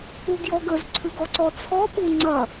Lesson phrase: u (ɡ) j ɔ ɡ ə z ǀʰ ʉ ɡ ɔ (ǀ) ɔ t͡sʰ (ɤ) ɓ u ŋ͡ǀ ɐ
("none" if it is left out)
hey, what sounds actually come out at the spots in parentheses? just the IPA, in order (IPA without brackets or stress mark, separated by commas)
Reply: ɡ, ǀ, ɔ